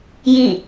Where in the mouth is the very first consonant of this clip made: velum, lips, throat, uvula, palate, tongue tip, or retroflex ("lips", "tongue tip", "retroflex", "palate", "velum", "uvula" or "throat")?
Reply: palate